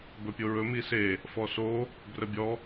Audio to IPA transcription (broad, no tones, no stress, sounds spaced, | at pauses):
b ɵ pʲ o ɹ ɵ m i s e | f ɔ s o | b r ə bʲ ɔ